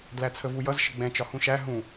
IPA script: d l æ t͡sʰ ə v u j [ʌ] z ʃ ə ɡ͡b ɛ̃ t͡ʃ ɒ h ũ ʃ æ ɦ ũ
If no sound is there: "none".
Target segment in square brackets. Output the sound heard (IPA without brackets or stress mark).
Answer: ʌ